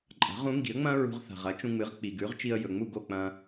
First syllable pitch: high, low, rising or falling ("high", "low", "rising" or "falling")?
rising